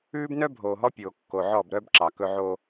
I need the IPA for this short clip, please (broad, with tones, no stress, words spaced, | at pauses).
ʉː˦bnœ˦bʱoː˨ɦɔ˦ pʲoː˨kːo˨ʕɔ˦˨bɾœ˦b ǁɑ˨ kɵ˦ʕoː˦